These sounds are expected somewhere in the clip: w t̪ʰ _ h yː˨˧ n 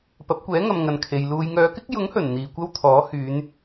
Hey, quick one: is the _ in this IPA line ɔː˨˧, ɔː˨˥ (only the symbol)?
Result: ɔː˨˥